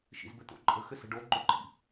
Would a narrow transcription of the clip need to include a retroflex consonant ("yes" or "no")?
yes